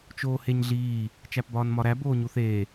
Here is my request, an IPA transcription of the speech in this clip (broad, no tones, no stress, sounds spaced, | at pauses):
t͡ʃ oː h e ɲ ɮ iː | t͡ʃ æ p b ɒː n m ɒ ɾ æ b oː ɲ u θ eː